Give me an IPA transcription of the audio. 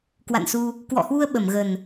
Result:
k w a̰˧˨ n s u˧ | k w ɔ̰˧˨ h w u˧ ə̯ ɓ ə˧˩ m ɣ ə˨˩ n

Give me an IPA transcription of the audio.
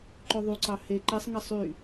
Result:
ǃ ø ðˤ y ǀ ɑ h e ǃ e sˤ ŋ ɛ sˤ y

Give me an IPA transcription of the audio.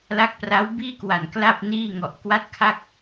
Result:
l a˦˥ k̚ p r a˦˥ w b iː˥˩ k w a˨˩ n k l a˥˩ p̚ n iː˥˩ ŋ ɔ˨˩ ʔ k w a˦˥ t̚ kʰ a˥˩ k̚

